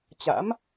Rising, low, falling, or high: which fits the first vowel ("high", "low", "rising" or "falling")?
rising